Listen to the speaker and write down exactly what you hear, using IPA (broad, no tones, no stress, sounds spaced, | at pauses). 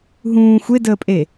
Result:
ɦ ũː xʷ e d əː pʼ e